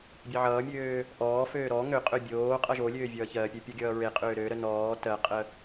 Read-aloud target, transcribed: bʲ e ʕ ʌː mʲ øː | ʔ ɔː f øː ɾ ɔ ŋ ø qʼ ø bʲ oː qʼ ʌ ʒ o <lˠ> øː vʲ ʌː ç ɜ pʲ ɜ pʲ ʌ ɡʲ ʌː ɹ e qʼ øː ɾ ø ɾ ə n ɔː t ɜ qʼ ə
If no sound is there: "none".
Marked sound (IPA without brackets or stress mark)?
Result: lʲ